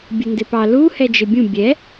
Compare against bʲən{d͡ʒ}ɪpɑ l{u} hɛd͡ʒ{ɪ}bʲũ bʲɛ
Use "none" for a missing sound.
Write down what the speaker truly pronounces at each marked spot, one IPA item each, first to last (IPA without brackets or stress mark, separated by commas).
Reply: d, u, ɪ